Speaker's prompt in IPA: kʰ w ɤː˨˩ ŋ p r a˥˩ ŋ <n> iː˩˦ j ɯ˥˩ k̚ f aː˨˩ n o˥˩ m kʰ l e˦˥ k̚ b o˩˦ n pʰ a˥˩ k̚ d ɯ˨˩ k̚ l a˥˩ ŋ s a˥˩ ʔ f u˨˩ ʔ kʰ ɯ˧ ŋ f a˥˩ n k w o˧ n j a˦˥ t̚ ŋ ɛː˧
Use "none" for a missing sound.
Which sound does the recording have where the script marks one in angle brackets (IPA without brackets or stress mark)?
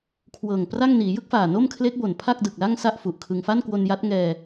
n